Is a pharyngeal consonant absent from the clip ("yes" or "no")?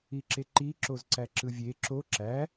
yes